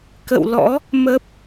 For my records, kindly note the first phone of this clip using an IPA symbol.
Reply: k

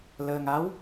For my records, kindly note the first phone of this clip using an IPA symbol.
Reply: l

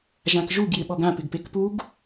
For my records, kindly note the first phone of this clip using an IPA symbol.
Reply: ʒ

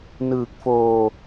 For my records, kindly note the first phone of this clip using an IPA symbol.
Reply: n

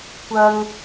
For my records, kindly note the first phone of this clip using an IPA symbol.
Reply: kʷ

